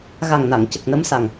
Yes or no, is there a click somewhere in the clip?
no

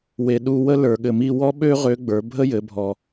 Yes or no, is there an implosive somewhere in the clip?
yes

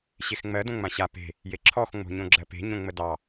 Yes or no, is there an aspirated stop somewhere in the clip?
yes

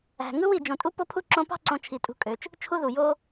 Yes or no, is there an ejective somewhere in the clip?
yes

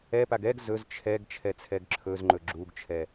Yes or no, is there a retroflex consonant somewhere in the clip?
no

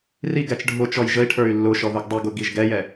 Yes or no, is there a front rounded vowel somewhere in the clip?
yes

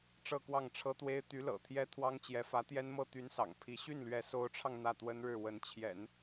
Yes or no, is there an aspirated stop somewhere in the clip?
yes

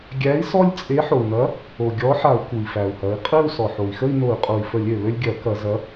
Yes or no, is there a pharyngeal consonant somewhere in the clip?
yes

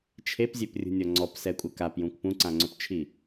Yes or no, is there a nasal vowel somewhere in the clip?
yes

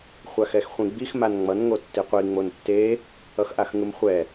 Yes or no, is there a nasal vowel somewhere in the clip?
yes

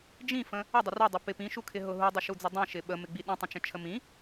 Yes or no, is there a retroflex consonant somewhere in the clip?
no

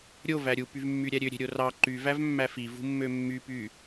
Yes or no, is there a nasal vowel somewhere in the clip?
no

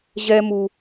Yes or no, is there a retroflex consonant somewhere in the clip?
no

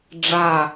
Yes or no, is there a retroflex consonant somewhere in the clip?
yes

